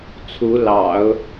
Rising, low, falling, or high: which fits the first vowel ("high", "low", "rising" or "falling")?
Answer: rising